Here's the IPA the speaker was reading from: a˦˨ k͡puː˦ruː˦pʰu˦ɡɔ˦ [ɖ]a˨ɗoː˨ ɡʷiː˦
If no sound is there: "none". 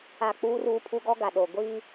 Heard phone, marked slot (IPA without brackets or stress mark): ɡ